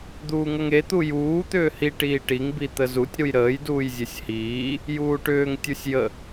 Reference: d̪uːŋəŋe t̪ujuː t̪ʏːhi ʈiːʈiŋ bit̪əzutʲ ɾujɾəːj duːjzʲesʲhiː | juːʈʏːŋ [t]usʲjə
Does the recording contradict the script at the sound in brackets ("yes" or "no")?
yes